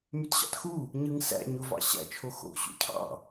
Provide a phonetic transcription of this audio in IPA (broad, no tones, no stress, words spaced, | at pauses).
mytɕɑ̰txu | ɲɯŋsæ̰ ɲovɑ̰ɕæ̰t͡ʃʰo xo̰ ɕṵcʰɑ̰